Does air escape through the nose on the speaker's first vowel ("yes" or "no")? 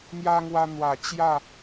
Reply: no